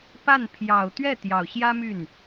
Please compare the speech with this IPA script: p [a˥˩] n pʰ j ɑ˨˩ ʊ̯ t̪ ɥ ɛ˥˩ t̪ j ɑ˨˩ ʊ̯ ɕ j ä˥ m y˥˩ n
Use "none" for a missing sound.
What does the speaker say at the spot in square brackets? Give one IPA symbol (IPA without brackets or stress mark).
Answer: a˥˩